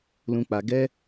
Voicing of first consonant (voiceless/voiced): voiced